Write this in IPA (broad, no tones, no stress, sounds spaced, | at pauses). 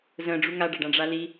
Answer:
z ə̃ ɖ͡ʐ u ŋ a ɖ a ɖ ã ɖ͡ʐ a l i